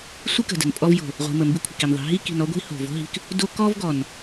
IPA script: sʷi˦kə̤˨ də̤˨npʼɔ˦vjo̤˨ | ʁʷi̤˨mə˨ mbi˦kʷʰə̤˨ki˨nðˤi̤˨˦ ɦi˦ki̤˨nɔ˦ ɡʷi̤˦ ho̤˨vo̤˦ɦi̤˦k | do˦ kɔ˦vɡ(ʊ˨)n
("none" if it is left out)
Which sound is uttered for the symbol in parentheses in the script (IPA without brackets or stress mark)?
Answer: ɔ˨